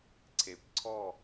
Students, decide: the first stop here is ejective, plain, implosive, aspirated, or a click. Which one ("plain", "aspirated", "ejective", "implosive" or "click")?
click